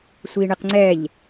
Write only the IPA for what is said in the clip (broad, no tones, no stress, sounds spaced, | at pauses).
sʷ i ɳ ɪ q ŋ͡ǀ ɛ ʎ